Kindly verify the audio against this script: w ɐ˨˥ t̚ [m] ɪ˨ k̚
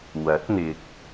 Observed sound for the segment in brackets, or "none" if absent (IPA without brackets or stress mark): n̪